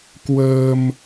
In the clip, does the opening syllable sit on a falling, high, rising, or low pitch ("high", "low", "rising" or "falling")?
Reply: low